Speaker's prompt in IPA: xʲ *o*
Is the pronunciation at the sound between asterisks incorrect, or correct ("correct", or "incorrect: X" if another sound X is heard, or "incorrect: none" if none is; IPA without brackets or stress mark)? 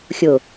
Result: correct